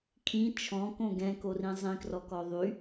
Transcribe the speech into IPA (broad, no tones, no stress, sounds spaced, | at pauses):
kʰ ĩ t͡ʃʰ ɔ̃ k õ ɡ ɛ̃ k o r ĩ zˤ ĩ k r ɔ k ɔ ðˤ y